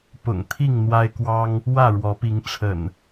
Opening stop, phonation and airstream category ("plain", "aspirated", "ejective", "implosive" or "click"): plain